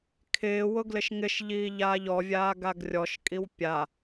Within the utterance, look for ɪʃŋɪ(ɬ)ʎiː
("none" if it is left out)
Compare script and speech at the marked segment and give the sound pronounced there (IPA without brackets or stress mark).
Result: ʃ